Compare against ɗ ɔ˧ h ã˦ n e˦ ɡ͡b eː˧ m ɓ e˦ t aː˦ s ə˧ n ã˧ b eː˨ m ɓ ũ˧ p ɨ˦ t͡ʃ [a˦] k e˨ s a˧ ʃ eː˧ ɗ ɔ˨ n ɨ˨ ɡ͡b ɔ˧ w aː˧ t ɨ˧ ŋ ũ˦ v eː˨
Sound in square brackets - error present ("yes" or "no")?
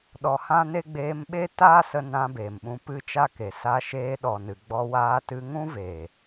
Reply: no